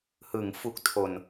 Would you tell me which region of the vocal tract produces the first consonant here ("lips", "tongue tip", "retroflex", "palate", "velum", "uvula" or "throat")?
throat